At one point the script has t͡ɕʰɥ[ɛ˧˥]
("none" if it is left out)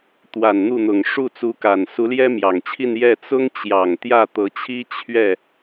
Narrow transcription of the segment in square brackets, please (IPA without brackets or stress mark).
ɛ˥˩